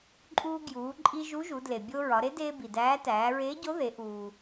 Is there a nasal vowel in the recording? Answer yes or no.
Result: no